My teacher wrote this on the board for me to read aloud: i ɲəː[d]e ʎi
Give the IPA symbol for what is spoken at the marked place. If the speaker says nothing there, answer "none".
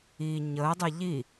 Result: dˤ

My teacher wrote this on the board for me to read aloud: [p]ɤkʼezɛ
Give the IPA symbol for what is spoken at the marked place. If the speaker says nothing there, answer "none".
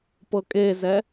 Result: p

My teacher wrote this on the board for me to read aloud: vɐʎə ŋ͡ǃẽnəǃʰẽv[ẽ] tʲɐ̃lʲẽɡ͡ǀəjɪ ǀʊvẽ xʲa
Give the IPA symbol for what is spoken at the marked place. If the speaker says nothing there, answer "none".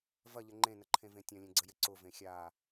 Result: ẽ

